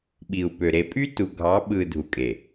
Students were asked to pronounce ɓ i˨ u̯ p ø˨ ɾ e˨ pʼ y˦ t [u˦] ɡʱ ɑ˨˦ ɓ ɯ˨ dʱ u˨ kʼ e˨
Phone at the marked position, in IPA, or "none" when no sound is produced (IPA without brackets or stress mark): u˨